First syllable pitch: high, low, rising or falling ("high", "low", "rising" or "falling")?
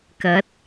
rising